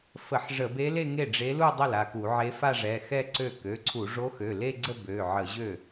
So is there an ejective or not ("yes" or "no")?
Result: no